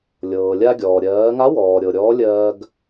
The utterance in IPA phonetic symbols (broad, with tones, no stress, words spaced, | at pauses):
lʲɤː˩lʲa˧ɡʲɔː˩ ɾʲɜː˩˧ŋa˧˥wɔː˩ ɾʲɤ˩ɾʲɔː˧˥ lʲɜː˧ɡ